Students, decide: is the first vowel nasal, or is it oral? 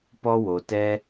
oral